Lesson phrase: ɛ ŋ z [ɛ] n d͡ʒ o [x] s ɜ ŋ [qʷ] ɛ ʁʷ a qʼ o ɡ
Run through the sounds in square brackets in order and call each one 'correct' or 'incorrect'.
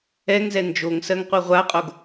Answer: correct, incorrect, correct

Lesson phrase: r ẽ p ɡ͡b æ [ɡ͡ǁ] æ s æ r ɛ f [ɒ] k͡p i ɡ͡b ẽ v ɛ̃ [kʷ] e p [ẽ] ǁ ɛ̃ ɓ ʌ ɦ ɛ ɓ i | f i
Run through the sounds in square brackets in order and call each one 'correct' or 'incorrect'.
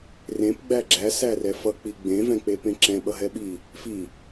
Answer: correct, incorrect, incorrect, correct

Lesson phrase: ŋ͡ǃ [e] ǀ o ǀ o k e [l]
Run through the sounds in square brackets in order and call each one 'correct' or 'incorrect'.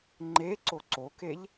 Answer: correct, incorrect

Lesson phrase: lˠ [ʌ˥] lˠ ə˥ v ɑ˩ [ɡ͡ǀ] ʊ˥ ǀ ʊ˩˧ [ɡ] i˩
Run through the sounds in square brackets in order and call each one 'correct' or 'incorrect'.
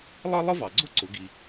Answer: correct, correct, correct

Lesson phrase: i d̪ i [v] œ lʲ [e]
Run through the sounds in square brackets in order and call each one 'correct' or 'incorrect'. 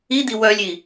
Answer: incorrect, incorrect

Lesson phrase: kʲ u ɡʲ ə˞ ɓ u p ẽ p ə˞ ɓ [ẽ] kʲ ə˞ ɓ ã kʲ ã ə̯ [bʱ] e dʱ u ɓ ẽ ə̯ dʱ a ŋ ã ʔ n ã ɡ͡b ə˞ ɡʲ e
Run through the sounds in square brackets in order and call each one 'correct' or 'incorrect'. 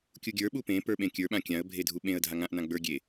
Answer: correct, correct

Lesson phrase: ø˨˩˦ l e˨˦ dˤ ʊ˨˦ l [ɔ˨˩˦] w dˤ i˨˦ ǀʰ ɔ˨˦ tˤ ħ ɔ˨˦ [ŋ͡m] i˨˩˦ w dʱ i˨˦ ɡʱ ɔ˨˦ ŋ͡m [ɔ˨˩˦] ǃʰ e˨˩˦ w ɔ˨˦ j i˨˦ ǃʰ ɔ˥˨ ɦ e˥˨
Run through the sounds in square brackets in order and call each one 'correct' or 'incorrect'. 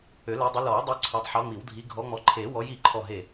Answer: correct, correct, incorrect

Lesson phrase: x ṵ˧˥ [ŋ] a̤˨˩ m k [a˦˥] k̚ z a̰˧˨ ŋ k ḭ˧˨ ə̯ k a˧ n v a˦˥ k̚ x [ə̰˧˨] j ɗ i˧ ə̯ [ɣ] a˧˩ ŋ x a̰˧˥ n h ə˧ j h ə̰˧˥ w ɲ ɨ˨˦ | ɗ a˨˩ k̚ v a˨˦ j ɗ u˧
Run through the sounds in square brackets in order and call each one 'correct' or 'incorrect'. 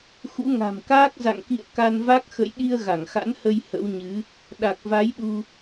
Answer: correct, incorrect, correct, correct

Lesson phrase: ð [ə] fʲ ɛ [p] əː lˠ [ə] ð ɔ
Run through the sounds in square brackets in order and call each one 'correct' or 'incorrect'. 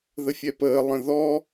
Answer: correct, correct, incorrect

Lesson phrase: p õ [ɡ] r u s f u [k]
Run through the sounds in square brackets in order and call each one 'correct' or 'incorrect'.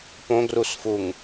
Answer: correct, incorrect

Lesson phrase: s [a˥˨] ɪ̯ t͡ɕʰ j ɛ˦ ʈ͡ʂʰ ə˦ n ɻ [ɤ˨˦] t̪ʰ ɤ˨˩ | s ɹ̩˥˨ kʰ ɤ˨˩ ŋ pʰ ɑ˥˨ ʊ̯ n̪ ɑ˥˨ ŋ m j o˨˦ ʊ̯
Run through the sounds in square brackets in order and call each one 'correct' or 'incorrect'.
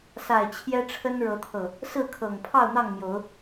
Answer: incorrect, correct

